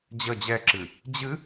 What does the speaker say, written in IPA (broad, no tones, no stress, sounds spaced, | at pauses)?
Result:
d͡ʑ ə d͡ʑ ɛ ǁ ɨ | d͡ʑ ɨ